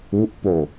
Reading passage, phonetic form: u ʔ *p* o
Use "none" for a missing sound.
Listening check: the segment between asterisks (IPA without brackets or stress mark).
p